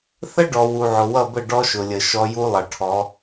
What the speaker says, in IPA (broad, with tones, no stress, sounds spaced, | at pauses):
θ ə˦ ɖ ɔ˨ w u˨ ʕ ʊ˨ w ʌ˦˨ b ə˦˨ ɖ ɔ˦ ʃ ʊ˨ lʲ ə˨ ʃ ɔ˦ j u˦ lˠ ʌ˨ ʈʰ ɔ˨˦